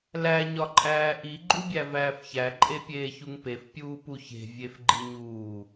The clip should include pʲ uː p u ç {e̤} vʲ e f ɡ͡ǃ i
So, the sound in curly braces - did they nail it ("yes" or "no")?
yes